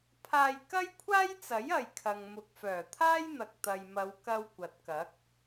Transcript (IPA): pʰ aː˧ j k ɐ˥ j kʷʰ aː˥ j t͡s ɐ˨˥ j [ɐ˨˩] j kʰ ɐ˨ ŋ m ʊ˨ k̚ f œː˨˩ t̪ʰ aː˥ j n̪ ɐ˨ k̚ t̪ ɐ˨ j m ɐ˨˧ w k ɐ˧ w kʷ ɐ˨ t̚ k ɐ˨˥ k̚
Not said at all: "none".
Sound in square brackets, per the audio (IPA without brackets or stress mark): ɐ˨